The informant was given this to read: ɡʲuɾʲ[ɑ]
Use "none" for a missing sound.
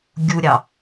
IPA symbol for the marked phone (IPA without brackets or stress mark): ɑ